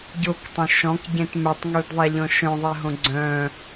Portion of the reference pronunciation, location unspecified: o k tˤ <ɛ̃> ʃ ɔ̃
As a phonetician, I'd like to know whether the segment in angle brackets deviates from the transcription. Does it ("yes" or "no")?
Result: yes